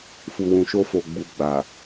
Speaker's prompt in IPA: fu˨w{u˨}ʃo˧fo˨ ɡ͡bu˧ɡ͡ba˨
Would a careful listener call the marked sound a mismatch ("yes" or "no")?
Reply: yes